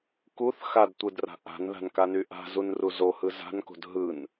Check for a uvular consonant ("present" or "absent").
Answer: absent